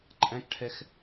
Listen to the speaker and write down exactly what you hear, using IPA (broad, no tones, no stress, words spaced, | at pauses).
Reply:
ǃʼæ̃kʈʰɛx